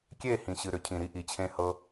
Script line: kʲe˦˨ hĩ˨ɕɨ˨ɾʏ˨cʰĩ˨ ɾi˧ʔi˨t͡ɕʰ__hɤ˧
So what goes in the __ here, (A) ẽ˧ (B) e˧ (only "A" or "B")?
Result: A